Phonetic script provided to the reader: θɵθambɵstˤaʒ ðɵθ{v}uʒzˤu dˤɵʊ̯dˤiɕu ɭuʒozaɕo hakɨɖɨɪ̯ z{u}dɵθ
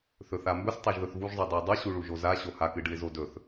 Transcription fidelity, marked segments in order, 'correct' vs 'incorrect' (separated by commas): correct, incorrect